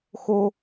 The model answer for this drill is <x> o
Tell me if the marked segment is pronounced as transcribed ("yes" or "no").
yes